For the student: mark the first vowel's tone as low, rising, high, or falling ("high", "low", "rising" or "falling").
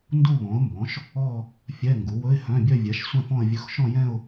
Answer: falling